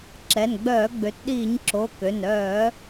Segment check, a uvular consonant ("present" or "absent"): absent